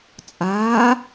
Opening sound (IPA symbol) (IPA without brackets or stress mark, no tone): t͡sʼ